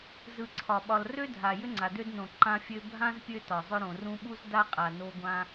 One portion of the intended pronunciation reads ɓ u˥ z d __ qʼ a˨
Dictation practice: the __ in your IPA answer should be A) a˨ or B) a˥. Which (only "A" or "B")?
B